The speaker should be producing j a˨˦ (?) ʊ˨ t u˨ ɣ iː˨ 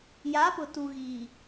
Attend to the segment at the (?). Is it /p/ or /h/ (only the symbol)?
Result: p